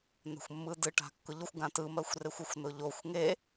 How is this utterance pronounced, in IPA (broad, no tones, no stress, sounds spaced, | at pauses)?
n̪ a̤ xʷ mː ɯ d ɯ ʈ a̤ kː ʊ ʎ ʊ xʷ ɡ ã t ɯ m ɜ xʷ r e xʷ ʊ xʷ n ʊ ʎ o xʷ ŋ e